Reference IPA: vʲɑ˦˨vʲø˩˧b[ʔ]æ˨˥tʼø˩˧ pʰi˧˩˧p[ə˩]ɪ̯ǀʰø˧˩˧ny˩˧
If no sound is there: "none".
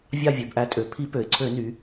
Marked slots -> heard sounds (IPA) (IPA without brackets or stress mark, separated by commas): ʔ, ø˩